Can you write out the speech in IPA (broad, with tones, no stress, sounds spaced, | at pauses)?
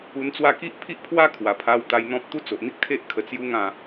u˧ n t͡s w a˥˧ k i˦ ʔ pʰ i˦ ʔ pʰ w a˦ kʰ w a˨˩ pʰ a˧ w t̪ a˧ j n̪ ɔ̃˦ p̚ t̪ u˦ t͡s o˨ ʔ n̪ i˦ k̚ t̪ʰ e˦ ʔ kʰ ə˧ t͡s j u˦ ŋ ã˥˧